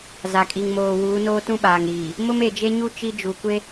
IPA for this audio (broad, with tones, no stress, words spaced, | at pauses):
za˨kʼi˨ŋmoː˨ wuː˨˦noː˦tũ˦ ɓaː˨ŋɾiː˨ | mʊ˦me˨d͡ʒe˦ɲu˦ t͡ʃi˦d͡ʒu˨kʷe˦